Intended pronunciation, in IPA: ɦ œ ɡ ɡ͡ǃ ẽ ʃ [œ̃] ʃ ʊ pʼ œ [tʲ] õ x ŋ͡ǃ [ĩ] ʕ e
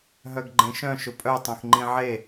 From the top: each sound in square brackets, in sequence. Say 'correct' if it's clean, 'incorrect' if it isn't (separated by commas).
correct, incorrect, correct